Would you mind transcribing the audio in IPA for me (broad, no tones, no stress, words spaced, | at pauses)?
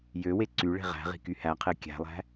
jøwe ǀyɭe̤ ʁæ̤ʁi̤ kyhæqʰe kʲæ̤lˠæ̤